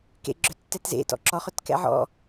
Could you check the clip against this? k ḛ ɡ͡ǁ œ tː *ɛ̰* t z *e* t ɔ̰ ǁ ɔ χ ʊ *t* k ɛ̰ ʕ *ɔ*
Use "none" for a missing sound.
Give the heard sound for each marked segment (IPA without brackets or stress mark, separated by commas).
ɛ, ḛ, t, ɔ̰